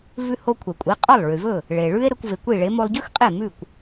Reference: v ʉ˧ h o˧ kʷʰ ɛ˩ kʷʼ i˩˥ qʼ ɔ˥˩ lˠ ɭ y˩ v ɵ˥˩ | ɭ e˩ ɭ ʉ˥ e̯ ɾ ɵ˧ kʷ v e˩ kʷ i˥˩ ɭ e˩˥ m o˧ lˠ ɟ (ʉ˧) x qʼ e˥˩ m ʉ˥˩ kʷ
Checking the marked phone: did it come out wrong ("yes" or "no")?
yes